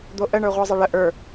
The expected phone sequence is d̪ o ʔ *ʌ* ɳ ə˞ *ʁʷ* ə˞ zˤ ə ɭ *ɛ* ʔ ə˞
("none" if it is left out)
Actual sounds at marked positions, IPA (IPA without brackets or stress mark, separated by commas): ə, ʁʷ, ə